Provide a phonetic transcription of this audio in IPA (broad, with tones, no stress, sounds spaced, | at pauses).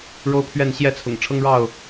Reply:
ɻ o˦ ʊ̯ pʰ ɥ ɛ˥˨ n ɕ j ɛ˥˨ t͡sʰ ʊ̰˨˩ ŋ ʈ͡ʂʰ ɤ˦ ŋ ɻ ɑ˥˨ ʊ̯